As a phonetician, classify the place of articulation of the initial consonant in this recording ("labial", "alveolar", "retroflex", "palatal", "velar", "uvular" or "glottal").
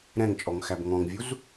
alveolar